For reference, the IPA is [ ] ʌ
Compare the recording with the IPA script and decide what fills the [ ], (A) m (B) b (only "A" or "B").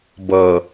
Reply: B